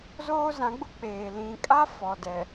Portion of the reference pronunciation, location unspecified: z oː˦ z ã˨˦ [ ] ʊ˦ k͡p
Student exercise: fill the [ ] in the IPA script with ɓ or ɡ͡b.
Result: ɡ͡b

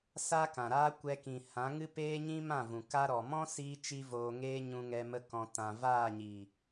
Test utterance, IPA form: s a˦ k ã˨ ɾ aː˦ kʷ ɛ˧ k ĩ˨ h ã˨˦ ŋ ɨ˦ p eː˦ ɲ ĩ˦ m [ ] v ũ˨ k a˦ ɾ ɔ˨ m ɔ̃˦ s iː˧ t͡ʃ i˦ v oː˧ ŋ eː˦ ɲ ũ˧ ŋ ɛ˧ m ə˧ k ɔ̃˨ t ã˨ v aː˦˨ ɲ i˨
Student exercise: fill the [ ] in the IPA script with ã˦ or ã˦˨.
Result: ã˦˨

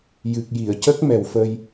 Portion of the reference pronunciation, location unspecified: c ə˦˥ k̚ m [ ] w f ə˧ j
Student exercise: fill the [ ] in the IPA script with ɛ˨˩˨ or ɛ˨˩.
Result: ɛ˨˩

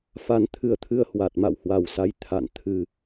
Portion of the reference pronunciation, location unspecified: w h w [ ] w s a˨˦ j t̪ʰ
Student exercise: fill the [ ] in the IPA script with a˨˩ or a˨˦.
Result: a˨˩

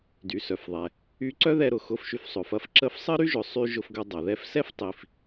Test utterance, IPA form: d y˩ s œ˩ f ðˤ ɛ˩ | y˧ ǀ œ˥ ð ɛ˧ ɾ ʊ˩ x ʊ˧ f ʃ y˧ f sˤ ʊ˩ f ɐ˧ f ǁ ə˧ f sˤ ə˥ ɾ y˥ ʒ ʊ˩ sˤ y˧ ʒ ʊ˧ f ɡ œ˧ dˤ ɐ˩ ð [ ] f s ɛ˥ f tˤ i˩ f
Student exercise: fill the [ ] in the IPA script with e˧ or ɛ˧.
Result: ɛ˧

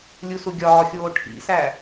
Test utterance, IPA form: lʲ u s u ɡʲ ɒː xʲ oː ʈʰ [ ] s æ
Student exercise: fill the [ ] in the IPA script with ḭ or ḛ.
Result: ḭ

